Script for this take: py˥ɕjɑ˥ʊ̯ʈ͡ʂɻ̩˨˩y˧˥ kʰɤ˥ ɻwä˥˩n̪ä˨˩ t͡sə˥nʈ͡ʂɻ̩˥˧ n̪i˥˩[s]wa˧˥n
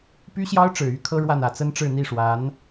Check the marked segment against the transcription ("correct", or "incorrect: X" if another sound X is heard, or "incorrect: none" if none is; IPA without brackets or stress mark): incorrect: ʂ